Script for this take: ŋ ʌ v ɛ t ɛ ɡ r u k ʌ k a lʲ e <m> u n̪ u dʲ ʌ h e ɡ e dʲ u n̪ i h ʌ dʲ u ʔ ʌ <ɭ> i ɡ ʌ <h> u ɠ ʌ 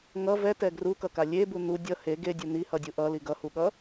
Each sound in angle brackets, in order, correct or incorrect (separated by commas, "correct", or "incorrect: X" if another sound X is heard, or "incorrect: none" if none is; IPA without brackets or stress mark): incorrect: b, incorrect: l, correct